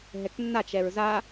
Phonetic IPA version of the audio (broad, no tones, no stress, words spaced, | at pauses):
ɦɛknːa t͡ʃɛɹza